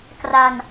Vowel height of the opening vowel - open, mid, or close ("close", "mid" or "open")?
open